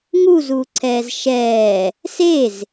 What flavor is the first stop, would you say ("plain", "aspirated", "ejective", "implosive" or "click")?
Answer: click